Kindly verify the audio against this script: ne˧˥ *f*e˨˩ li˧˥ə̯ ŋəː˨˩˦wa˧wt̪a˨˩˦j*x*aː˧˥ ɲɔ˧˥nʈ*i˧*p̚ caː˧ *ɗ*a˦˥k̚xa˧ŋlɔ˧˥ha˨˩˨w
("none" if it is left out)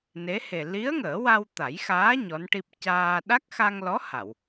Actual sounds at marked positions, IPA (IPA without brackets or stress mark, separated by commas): h, x, i˦˥, ɗ